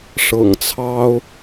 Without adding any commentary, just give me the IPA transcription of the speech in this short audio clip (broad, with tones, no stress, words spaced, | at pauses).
ʂɤ̰˨˩ŋt͡sʰɑ˦ʊ̯